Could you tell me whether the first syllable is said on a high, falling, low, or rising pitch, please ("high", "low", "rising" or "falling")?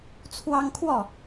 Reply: high